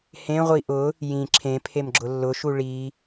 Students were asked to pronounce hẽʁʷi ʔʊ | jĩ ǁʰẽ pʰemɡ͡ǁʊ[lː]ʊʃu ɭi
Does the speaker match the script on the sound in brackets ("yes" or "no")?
yes